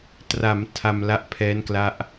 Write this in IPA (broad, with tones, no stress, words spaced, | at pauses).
tra˩˦m tʰa˧mla˥˩ʔ pʰɛː˦˥nkla˥˩ʔ